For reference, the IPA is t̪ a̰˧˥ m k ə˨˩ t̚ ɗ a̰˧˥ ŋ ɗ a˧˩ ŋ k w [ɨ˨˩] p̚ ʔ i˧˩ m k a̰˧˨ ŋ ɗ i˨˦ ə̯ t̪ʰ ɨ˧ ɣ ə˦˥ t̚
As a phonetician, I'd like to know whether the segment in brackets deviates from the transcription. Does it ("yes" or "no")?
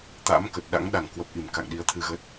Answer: yes